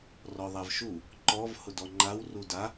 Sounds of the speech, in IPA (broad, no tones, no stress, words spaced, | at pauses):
rɔðˤavʃu | ǃɔv hʊdɔŋ͡ǃaw ruda